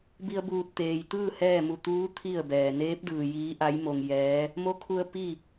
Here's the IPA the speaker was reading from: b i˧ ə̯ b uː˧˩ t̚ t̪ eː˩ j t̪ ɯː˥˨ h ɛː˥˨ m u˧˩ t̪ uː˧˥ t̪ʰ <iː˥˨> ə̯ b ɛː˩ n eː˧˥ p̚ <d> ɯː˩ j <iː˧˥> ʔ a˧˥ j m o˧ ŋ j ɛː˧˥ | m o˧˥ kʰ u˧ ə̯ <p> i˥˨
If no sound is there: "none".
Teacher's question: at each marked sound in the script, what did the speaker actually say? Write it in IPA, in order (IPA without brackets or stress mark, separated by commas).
i˥˨, d, iː˧˥, p